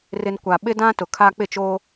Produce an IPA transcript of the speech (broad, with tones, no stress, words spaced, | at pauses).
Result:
rɪ˨n kʷa˨ɓɪ˦dã˦ tʊ˨kʰa˦ k͡pɪ˦˨t͡ʃoː˦